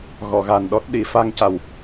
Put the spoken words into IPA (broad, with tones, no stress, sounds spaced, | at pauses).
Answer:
ɣ ɔ˨˩˨ ɣ a˨˩ n ɗ ɔ˦˥ t̚ ɗ i˨˩˨ f a˧ ŋ c a˨˩ w